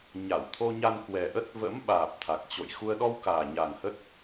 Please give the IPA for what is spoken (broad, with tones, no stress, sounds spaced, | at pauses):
ɲ a˧˩ w t̪ʰ o˧ ɲ a˧ n k w ɛ˨˩ ʔ ə˦˥ t̚ v ə̰˧˥ m ɓ aː˨˩ p̚ t̪ʰ a˨˩ k̚ t͡ɕ o̰˧˨ j x u˧ ə̯ ɗ ɔ˧ w k aː˨˩ ɲ a˨˩ ŋ h ə˦˥ t̚